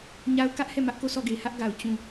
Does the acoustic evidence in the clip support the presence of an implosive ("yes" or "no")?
no